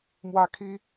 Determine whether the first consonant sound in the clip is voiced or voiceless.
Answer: voiced